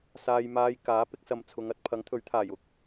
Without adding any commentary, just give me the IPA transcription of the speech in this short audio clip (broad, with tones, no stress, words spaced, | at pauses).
saː˨j maː˧j kaː˨˥ pɪ˧k̚sɐ˨m t͡sʰʊ˨˧ŋɐ˥t̚ pʰɐ˨˥ŋt̪ʰɵ˨˥ɥt̪ʰaː˨˩j ʊ˧k̚